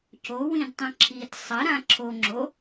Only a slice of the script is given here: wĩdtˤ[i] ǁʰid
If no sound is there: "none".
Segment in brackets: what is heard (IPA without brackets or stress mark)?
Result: ĩ